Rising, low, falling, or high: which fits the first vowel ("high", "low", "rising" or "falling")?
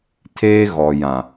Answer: high